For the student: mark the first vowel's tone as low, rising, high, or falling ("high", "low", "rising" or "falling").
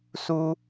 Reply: high